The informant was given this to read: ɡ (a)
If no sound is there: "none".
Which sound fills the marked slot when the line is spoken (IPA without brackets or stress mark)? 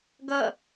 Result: ʌ